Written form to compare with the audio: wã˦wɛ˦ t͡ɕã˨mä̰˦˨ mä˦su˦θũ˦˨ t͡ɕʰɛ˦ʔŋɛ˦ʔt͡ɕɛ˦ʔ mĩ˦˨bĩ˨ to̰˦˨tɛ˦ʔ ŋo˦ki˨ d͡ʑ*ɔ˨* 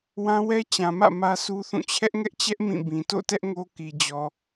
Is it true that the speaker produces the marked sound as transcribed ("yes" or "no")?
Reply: yes